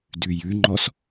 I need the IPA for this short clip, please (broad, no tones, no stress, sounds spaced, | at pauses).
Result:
d ʉ j ʉ ŋ͡ǃ ɔ s